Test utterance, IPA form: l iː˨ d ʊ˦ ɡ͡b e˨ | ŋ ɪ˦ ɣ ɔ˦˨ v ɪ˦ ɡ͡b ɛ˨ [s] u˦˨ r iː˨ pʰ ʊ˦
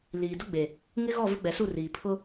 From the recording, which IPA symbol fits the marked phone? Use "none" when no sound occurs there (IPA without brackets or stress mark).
s